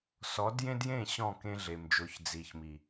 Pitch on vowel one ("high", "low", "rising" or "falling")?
rising